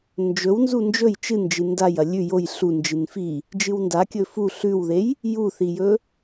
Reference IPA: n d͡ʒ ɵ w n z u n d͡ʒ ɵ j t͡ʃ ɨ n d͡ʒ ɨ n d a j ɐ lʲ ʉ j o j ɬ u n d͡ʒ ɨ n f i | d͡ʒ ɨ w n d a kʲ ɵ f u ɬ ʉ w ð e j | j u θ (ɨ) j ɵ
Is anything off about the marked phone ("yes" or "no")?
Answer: yes